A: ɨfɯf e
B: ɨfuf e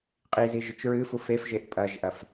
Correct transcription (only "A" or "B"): B